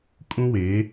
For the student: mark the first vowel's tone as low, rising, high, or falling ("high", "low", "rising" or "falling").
high